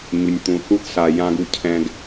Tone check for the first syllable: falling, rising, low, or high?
low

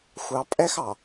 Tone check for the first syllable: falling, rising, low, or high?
low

